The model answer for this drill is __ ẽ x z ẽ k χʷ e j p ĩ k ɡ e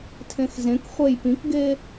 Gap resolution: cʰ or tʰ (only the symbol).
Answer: tʰ